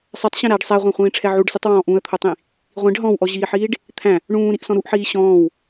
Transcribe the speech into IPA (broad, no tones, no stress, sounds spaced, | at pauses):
sˤ ɛ tˤ ɕ ɛ̃ ɾ æ ɖ sˤ æ ʁʷ æ̃ χʷ ĩː ʈ͡ʂʰ ɛ ʕ u ɖ s e tˤ w ɔ̃ː ʔ ũ ə̯ t̪ʰ o tˤ ĩ | ʁʷ ĩ ɖ ɦ ɔ̃ w ʔ ɔ ʑ iː ħ iː ɖ | t̪ʰ æ̃ | ɳ ũː ɾ i ʔ s ɔ̃ ɾ u ʔ ħ iː ɕ ɔ̃ː w